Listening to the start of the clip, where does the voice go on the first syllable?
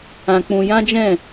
high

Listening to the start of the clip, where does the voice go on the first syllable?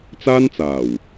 high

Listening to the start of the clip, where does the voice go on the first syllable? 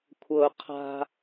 low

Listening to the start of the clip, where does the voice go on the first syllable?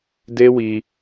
high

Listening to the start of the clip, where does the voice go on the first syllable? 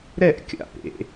falling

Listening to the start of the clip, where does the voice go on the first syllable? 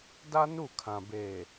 high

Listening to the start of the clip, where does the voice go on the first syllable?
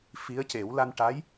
rising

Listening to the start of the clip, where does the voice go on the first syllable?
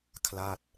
falling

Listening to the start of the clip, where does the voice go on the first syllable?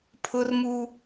high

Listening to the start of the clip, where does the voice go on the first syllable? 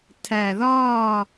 low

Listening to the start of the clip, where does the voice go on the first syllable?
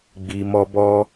low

